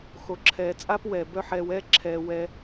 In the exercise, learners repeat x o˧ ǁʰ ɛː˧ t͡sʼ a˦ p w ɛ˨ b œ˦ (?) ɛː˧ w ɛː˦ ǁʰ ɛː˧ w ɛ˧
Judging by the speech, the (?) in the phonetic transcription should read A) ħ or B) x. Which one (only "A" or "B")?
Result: A